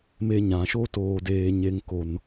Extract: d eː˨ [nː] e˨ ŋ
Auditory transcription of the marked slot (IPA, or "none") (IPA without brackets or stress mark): ɲ